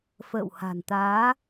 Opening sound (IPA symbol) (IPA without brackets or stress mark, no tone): f